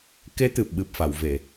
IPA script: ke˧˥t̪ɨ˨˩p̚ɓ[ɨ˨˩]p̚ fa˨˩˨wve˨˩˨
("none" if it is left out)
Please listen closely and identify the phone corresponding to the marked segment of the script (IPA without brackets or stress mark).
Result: ɨ˨˩